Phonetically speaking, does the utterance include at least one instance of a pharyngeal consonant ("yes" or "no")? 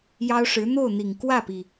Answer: no